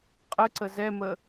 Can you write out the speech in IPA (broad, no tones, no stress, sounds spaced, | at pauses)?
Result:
qʼ ə ǀ ə z ɛ m ə